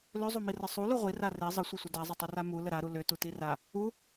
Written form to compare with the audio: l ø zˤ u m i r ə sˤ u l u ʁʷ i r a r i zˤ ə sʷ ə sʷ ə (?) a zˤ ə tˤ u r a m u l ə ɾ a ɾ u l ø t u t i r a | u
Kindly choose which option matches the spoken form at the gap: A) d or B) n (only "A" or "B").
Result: A